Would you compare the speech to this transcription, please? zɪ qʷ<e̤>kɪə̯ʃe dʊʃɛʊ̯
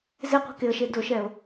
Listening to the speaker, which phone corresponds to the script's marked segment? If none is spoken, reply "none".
e̤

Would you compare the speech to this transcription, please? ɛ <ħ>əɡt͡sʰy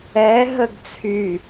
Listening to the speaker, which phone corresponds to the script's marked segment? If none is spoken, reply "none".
ɦ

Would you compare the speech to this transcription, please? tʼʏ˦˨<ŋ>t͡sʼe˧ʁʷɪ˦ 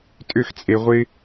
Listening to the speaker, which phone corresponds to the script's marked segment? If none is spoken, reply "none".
x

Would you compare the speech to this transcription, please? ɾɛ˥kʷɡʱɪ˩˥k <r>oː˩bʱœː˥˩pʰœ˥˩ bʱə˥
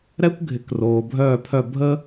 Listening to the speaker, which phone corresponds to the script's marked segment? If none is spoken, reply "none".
r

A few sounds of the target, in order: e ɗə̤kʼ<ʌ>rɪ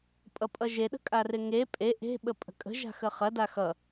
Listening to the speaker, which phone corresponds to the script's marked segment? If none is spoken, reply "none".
a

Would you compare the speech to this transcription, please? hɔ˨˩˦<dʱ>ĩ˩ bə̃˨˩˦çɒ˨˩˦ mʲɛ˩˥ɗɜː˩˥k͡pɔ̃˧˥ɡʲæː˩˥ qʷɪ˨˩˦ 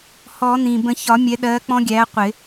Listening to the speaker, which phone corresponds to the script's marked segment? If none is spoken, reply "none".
n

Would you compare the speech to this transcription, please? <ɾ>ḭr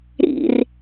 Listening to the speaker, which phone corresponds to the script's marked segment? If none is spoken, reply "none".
ɾ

